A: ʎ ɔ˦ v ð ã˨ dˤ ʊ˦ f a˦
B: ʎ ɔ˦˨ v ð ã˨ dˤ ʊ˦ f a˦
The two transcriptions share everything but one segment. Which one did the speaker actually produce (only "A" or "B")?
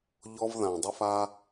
A